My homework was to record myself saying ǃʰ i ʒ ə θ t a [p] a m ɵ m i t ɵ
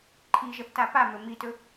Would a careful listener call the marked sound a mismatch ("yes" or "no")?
no